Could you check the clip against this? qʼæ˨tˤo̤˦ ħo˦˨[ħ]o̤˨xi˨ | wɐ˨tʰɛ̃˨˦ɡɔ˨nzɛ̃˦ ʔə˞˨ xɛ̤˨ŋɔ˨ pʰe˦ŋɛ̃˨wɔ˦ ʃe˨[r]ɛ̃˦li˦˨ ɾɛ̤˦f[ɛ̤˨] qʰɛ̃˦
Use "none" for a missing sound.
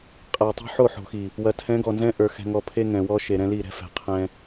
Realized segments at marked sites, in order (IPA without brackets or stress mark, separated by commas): ħ, ɾ, ɛ̤˨